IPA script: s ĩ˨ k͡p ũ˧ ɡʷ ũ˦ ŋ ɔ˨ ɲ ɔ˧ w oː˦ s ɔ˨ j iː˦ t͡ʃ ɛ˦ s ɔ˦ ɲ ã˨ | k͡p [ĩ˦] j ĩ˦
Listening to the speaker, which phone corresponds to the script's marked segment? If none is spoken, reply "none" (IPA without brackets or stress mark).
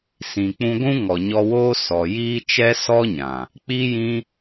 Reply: i˦